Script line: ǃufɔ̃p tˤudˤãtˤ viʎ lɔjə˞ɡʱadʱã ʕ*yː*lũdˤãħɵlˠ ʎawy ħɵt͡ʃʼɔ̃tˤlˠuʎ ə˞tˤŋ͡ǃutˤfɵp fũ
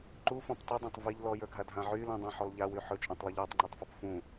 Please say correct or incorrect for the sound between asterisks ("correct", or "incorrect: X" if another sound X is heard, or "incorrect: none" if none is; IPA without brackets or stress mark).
incorrect: y